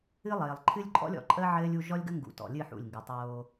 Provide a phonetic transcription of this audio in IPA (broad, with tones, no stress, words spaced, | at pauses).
ɨ˦lˠɘː˨lˠ ǃʰɨ˦lʲǃʼɔ̰˦lʲ ɔ̰˨ǃʼəː˦ ʕɘː˦lʲ u˦ ʒɔ˦lʲɡə˦ ŋɡṵ˨tɔ̰˨lʲɨ˦˨ ħṵ˦˨lʲŋɡɨ˨tˤoː˦